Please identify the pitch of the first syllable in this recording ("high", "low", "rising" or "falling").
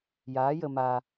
rising